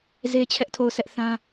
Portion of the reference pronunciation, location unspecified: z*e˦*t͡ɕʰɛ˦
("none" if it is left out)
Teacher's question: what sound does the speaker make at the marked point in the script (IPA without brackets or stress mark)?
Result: e˦